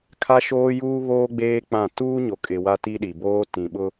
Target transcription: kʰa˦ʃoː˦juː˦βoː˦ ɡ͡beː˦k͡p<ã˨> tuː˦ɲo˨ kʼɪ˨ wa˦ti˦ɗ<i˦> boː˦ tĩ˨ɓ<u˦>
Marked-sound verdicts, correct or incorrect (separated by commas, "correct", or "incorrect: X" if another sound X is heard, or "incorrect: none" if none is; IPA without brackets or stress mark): incorrect: ã˦˨, incorrect: i˨, incorrect: ʊ˦